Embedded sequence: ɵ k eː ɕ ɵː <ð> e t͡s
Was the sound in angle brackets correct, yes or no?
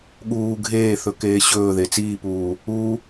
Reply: yes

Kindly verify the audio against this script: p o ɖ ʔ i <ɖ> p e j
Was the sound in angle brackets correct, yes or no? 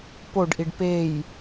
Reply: yes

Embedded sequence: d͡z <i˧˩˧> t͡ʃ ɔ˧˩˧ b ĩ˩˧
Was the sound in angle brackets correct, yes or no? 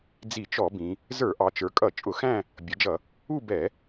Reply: yes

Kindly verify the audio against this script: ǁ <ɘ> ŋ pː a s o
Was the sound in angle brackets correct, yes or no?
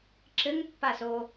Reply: yes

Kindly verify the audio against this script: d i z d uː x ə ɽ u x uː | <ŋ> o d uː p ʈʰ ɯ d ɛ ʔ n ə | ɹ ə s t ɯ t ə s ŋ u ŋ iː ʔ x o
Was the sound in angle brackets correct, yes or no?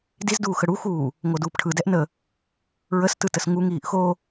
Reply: yes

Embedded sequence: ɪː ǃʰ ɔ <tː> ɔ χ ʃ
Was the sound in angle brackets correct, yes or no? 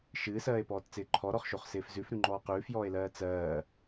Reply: no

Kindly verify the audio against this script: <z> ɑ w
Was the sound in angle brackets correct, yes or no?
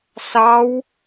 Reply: no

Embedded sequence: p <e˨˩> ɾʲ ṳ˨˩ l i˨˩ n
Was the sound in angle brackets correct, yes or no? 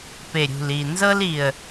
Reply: yes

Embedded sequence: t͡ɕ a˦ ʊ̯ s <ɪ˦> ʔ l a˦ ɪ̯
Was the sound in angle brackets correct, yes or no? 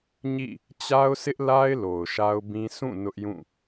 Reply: yes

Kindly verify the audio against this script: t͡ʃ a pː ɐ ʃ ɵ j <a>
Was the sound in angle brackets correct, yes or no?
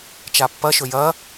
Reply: no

